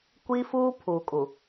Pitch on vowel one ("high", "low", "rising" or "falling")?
high